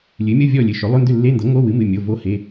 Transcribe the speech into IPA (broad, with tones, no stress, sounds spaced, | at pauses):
lʲ ɨ˩˥ mʲ ɤ˧˥˧ vʲ ɔ˥˨ lʲ ɨ˩˧˩ ʃ ʏ˩˥ lˠ ʏ˧˥˧ n d ʏ˥˨ lː e˧˥˧ n d ɤ˩˥ ŋ o˧˥˧ w ɨ˩˥ m ɨ˩˧˩ mʲ o˩˧˩ v o˧˥ h e˩˧˩